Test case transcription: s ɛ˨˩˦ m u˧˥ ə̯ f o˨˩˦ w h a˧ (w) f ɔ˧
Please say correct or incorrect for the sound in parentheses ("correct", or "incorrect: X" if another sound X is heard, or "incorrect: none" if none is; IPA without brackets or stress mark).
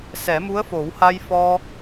incorrect: j